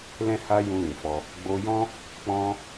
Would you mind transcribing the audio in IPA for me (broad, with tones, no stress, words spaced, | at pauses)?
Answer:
lɛ̃˦ha˦ jũ˧ lĩ˨fɔ˧ | ɡ͡bo˧jɔ̃˦ | k͡pɔ̃˦